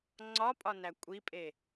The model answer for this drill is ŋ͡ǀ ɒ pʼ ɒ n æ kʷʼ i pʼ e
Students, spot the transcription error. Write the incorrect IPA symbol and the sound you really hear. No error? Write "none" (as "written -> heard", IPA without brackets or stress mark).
none